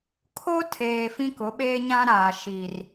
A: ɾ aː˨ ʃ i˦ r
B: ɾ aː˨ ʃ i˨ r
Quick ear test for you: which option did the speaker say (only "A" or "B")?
B